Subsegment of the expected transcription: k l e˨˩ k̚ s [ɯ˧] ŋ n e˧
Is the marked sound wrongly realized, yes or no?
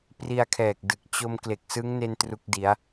yes